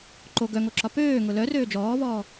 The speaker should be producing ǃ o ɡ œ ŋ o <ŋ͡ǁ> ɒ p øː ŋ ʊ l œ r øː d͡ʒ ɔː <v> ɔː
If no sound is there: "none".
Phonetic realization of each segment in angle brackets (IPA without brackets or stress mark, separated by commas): ǁ, v